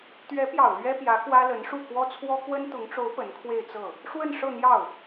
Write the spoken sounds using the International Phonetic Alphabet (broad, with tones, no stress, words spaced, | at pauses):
t̪ɥɛ˧˥pjɑ˨˩ʊ̯ lɥɛ˥pjä˧˥ kwä˥lə˧˥nʂu˥˩ kwɔ˥t͡sʰwɔ˥ kwə˥nt̪ʊ˧˥ŋʈ͡ʂo˧˥ʊ̯ pə˧˥nkʰwe˥˧ɪ̯t͡sɤ˥˩ | ʂwə˥˧nʂɤ˥˧n̪jɑ˥˩ʊ̯